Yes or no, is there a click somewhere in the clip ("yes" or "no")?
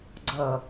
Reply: yes